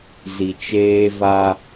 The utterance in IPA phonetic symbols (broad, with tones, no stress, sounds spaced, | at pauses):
z i˨ t͡ʃ eː˦ v a˦